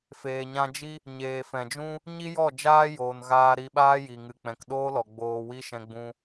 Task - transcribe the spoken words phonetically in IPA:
feː˨ɲã˧d͡ʒi˦ | ɲeː˨fɛ̃˨d͡ʒũ˦ | ɲi˦ jɔ˦˨d͡ʒaː˦ joː˨nɣaː˧ ɾi˧ɓaː˦ji˨ ŋɨ˨k͡pɛ̃˨kɗoː˦lɔ˨ ɡ͡boː˧wi˦ʃɛ̃˧ ɡ͡bũ˧

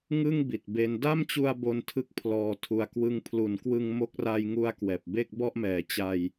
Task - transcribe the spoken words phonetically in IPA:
ŋɯ˥˩ŋ bi˨˩t̚be˦˥n da˥˩mt͡ɕu˧a̯ bo˧ntʰɯ˦˥k̚ pʰlɔː˨˩tʰu˨˩a̯ kwɯ˧ŋ pʰlu˩˦nkwɯ˧ŋ mo˦˥k̚ ra˧jŋu˧a̯ kwɛː˨˩p̚be˥˩k̚bɔ˥˩ʔ mɛː˩˦t͡ɕa˧j

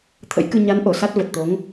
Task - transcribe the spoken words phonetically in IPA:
t̪ʰə̰˧˥jkɨ˧ ɲa˨˦n ʔo˧˩sa˦˥t̚və˨˩t̚t̪o˨˦ŋ

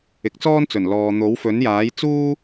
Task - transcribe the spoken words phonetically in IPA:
ɪ˨˥k̚t͡sɔː˥nt͡sɵ˨˩n lɔː˨ n̪o˨˥wfɵ˨˥n jaː˨˥jt͡suː˥

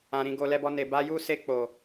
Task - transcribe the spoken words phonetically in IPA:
ã˧ɾĩ˧ɡo˧ lɛ˧bɔ˧ne˨ ba˧ju˦ se˧k͡po˨

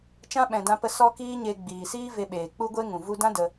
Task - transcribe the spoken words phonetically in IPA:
t͡ʃã˦ɓɛ̃˨dã˧pə˧ sɔ˦kiː˦ɲe˧ ɡ͡biː˨siː˦ ve˧ɓeː˨ k͡pu˦ɡʷe˦ ŋũ˨vu˧dã˦ də˧

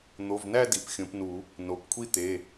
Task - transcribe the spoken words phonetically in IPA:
n̪o˩˧˩vnæ˥˧ di˩˧˩pxʲõ˨˩˦pnu˨˩˦ | no˩˧˩pkʷʰi˥˧t̪e˩˧˩

